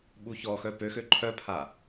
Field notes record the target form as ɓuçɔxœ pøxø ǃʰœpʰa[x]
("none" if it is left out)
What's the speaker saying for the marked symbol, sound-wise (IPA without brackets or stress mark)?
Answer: none